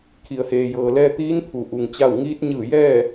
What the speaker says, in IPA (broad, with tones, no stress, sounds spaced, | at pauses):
kʰ i˩ ə̯ h eː˩ j ɤː˩ l ɛː˧ t̪ iː˧˥ n t̪ʰ u˩ ʔ u˩ ŋ t͡ɕ a˥˨ w ŋ iː˧˥ t̚ ɲ ɯː˧˩ j ɛː˥˨